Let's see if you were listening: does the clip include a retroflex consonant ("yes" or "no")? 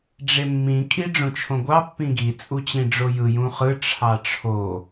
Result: yes